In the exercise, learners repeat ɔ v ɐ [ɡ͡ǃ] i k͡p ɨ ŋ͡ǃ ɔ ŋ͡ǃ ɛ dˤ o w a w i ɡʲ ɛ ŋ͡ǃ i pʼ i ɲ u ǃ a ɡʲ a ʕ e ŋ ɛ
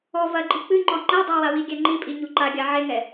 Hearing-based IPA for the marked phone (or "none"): ɡ͡ǃ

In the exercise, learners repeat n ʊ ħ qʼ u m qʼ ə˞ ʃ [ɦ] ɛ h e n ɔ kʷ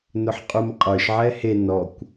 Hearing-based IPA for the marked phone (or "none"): ʕ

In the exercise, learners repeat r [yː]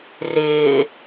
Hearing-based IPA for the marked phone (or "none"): ɪː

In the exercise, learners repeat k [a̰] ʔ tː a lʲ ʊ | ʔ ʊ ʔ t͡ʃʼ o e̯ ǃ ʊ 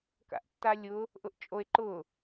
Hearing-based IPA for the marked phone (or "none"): a̰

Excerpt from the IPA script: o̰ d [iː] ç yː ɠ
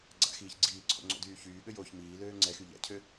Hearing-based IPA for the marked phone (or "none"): yː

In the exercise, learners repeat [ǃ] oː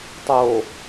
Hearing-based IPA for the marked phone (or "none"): tˤ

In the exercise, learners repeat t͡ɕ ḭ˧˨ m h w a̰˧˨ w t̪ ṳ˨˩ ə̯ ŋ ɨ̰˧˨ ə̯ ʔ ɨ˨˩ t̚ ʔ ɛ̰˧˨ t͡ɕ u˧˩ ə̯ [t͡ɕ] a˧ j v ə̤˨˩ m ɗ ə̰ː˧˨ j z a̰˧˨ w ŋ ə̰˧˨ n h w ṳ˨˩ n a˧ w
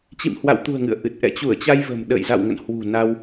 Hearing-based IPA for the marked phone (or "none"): t͡ɕ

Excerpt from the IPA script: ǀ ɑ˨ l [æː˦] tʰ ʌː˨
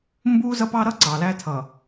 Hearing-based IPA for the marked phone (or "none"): æː˦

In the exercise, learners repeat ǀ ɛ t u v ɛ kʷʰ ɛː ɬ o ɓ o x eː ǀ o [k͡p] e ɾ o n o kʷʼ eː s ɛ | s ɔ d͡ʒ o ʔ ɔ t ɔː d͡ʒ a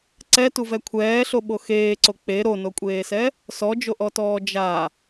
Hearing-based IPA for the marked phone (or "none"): k͡p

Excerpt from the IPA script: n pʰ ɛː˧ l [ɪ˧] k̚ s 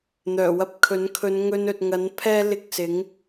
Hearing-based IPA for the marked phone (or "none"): ɪ˧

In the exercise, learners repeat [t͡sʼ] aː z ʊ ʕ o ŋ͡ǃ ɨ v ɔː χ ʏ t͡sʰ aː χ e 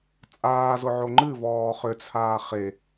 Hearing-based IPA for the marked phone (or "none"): t͡sʼ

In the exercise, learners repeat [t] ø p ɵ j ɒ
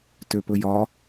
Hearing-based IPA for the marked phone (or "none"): t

